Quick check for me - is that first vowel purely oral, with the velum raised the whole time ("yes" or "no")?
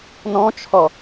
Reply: no